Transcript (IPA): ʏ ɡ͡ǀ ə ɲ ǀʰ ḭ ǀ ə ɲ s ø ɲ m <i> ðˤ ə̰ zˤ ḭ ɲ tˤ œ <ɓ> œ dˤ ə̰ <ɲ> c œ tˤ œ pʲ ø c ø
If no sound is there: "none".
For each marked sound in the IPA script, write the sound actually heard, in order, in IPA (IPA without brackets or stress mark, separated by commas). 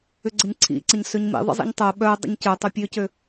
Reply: ḭ, ɓ, ɲ